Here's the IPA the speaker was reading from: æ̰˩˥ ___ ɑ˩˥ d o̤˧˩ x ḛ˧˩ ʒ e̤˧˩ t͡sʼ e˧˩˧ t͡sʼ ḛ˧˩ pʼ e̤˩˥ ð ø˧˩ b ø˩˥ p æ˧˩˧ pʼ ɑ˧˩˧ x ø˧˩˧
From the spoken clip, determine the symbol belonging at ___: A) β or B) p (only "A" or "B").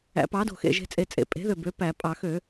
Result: B